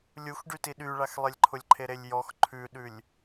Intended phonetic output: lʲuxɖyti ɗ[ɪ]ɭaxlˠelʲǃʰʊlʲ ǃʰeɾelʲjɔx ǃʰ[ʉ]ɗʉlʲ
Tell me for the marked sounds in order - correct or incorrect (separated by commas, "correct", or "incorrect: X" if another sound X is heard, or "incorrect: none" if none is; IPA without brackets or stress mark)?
incorrect: y, correct